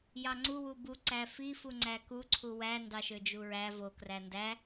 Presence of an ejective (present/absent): absent